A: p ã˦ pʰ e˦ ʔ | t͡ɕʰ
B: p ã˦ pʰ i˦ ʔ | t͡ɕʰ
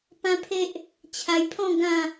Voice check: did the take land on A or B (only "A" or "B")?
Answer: A